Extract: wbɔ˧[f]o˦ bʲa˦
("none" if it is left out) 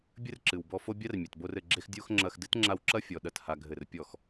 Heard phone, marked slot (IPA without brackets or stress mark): f